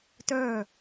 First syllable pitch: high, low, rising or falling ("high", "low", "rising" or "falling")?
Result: falling